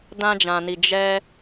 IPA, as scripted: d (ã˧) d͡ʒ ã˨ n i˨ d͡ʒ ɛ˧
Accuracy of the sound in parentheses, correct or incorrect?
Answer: correct